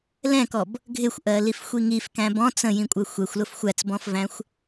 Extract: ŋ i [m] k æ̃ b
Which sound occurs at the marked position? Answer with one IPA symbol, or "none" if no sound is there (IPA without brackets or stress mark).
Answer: f